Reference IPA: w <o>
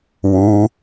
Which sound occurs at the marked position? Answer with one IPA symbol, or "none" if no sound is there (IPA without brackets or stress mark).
u